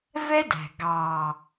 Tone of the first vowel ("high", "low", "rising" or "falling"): high